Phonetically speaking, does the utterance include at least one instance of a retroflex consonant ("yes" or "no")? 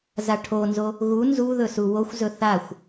yes